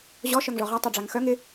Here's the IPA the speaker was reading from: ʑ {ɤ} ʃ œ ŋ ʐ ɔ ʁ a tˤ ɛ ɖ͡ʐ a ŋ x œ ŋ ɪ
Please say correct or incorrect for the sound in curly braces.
incorrect